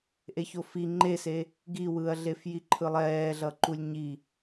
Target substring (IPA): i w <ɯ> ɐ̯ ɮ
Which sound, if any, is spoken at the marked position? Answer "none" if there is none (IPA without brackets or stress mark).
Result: ɯ